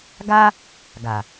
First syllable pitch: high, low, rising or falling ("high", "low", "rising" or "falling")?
high